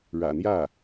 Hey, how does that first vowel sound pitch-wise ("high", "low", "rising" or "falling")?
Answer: low